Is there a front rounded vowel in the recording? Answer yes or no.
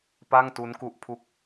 no